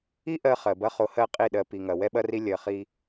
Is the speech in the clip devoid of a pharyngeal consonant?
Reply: yes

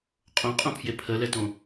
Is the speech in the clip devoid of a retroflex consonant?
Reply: yes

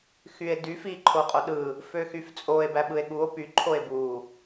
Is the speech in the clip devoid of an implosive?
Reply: no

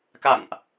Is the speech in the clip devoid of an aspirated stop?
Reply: yes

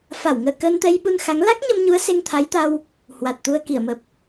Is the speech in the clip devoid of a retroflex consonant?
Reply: yes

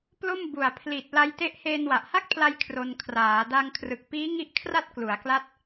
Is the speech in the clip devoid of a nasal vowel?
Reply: yes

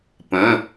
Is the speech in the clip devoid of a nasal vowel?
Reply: no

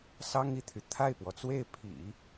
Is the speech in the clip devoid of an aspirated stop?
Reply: no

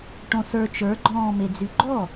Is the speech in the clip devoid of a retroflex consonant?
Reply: no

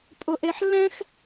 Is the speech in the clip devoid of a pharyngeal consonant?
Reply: no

